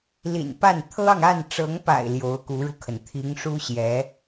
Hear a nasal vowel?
no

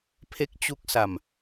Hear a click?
no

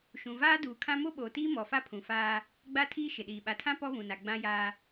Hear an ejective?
no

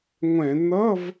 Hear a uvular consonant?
no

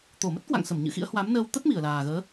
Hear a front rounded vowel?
no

